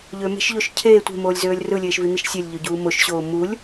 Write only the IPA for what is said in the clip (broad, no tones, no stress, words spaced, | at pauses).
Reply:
ʎøme̤ʃʎoʃ cʰeː tʷe̤moːlʲzøːlʲ rɯlʲeːʃvin̪iʃ sʲelʲʎøɟuː moʃɕoː mulʲ